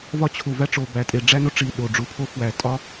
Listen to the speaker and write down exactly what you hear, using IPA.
v ɒ˦ t͡ɕʰ u˨˩ v æ˦ ʈ͡ʂ o˨˩ b æ˨˩ tʼ e˨˩ ɖ͡ʐ æ˦ n o˦ ʈ͡ʂ i˨˩ ɗ o˨˩ ɖ͡ʐ u˨˩ pʰ o˦ f w æ˨˩ tʼ ɒ˦

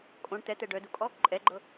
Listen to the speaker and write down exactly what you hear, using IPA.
kʼ õ ɳ t̪ ɛ t̪ ɛ ɖ œ d u kʼ ɔ | ǃʼ ɛ ɡ͡ǃ ɤ

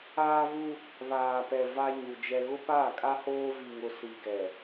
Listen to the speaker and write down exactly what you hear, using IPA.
aː˦ v u˦ | β aː˨ p ɛ˨ v a˦ ɲ u˨ d͡ʒ ɛ˦ ɣ ʊ˦ p aː˦˨ kʼ a˦ h oː˦ v i˨ ŋ ʊ˨ s i˨ ɡ ɛ˨

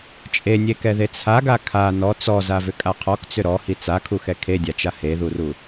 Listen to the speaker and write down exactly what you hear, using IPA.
t͡ʃʼ e nʲ e k ɛ ð e t͡sʰ a ɡ a kʰ a n ɔ t͡s ɔ z a v ʏ kʼ a qʰ ɔ k t͡s ʏ ɾ ɔ h i t͡s a kʰ u x ɛ kʰ e dʲ a t͡ʃ a h e ð u r u

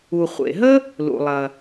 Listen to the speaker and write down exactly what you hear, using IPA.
u˩ χʷ ḛ˩ ɦ ə˥ | l ṵ˩ lˠ ɐ˩

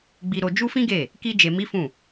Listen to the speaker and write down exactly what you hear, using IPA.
ɡ͡b i˧ ɾ o˧ d͡ʒ u˦ f ĩ˦ ɡ e˦˨ | k i˦ d͡ʒ e˧ m i˦ f ũ˦˨

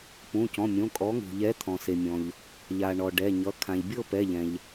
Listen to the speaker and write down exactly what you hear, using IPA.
p ũ˩˧˩ c ɔ̃˩˧˩ mʲ õ˩˧˩ kʼ ɔ˨˥ ŋ ṳ˩ ʎ ɛ˨˥ t̪ʰ ɔ̃˩ s e˩ mʲ ɔ̃˩ ʎ | ʎ a˩ ɳ ɔ˩ ɖ ɛ˩˧˩ ɲ ʌ˩˧˩ kʰ ã˩ ʎ bʲ ɤ˥˧ p ɛ˩˧˩ ʎ ɛ̃˩ ʎ

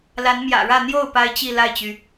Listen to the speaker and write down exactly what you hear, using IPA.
l a˧˥ n m j ä̰˨˩ ɻ ä˥˧ n̪ j o˥˩ ʊ̯ p a˥ ɪ̯ t͡ɕ i˥˧ l a˥˩ ɪ̯ t͡ɕ y˩

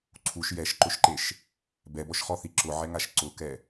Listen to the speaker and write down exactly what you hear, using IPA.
ǀʰ u ʃ j ɛ ʃ ǃ ʊ ʃ ǃ e ʃ | b ɛ b ɔ ʃ χ ɔ θ i ǁ ʊ ʕ ɛ ŋ a ʃ ǀ ʊ k ɛ

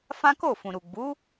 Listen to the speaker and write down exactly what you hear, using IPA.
f ã˦ k o˦˨ f ũ˨ ɾ u˨ ɡ͡b u˨˦

